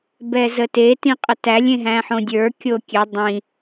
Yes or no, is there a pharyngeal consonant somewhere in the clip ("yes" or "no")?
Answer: yes